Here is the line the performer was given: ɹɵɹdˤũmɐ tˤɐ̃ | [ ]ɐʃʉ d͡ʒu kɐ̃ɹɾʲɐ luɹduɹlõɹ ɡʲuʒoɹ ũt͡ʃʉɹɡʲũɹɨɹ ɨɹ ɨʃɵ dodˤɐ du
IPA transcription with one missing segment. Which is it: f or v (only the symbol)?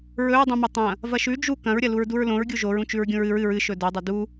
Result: v